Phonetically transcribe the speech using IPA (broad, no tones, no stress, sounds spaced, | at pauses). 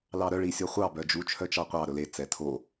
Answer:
l ɑ ɾ œ ɭ i sʲ ɔ χʷ ɑ b œ d͡ʒ u t͡ʃʰ œ t͡ʃ ɑ qʷ ɑ ɾ ɵ l e t͡s ɛ tʰ o